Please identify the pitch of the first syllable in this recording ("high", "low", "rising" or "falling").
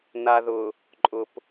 low